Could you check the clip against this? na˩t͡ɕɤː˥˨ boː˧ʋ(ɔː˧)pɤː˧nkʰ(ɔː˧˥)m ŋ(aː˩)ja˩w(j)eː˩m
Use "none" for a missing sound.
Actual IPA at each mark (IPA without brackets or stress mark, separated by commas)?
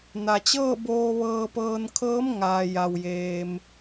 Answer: ɤː˧, ɤː˧˥, aː˩, j